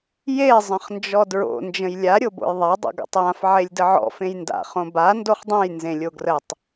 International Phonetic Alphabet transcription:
je zˤə̃χnd͡ʒɔdɹo̰ nd͡ʒə̃jlʲa ɾʲobo̰jðˤa dˤo̰ɡa̰tˤjãf ʕelʲdəʕɔ̰ fẽjnda̰ χõba ndoχdˤẽj nzẽlʲoɡrətˤ

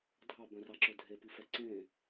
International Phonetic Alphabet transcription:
dʱɑbœ̃rɑǁɵ dʱepifɛ ǀẽ

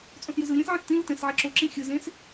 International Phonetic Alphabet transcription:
t͡sʼõsjɯzɯlʲɛ̃s ʕĩstĩlɯ tɛ̃s ʕɛǁoǁĩ xʲɯzẽs

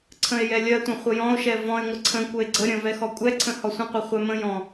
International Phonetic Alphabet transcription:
ǀʰə̃e̯jɛlʲɜtʷə̃ χʷəjɔ̃o̯ʃɛ vɔ̃e̯ ŋʷəǀʰə̃kʷɜe̯ ɡ͡ǀə ɾʲə̃vɛ xɔkʷʼɛǀʰə̃ hɔsʷə̃qʷɛ χʷɛmə̃jɔ̃

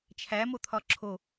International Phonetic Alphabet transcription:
t͡ʃʰæmot̪ʰɒ ǁʰo

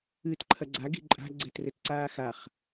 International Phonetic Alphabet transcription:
ɨːtǃʰɐɡ͡ǀa ɡi̤ǃʼa̤ ɡ͡ǀɛtrɘtǀaːxaχ

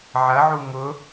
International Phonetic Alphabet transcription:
ʕɐʕu ŋʊ

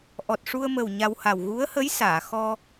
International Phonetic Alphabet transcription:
ʔɔ˨˩t̚ʂu˧ə̯mə˨˩w ɲa˧wha˨˩w ɣu˧˥ə̯hə˧˥j saː˨˩˨xɔ˧

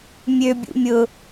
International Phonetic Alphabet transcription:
mʲøbʲṵ mʲʊ

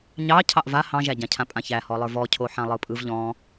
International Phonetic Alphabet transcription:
ɲɑ cʰɑʔva hɑ̃ʒæɟãcʰã pʼãçæhɔlˠə˞ vɔcʰo ħãlˠɯpʼɯv ʎɔ̃

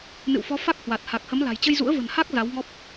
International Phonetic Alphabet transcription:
nɨ̰˧˨wfɔ˨˦ fa˦˥k̚hwa˨˩t̚ ha˨˩k̚hə˨˦m la̤˨˩jt͡ɕə˧jzṵ˧˥ə̯ və̤˨˩nha˦˥k̚ za˨˦wŋɔ˦˥p̚

